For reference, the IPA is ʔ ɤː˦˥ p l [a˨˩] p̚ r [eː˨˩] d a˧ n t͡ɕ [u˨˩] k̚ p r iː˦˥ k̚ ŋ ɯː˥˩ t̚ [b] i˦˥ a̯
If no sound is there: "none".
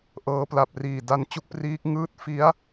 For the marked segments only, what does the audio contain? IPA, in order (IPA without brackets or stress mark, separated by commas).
a˨˩, iː˨˩, u˥˩, f